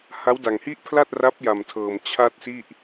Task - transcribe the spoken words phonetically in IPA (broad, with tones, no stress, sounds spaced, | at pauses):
h a˦˥ w d a˧ ŋ h i˥˩ ʔ pʰ l a˥˩ t̚ r a˦˥ p̚ j a˧ m tʰ ɤː˧ m t͡ɕʰ a˥˩ t̚ s i˥˩ ʔ